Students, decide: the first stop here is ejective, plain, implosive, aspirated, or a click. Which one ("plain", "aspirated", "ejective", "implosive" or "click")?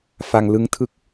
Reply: aspirated